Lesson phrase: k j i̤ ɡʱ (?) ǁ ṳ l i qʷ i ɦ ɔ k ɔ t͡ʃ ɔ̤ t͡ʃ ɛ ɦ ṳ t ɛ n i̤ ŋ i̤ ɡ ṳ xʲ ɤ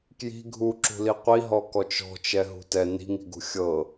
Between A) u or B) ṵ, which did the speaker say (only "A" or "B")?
A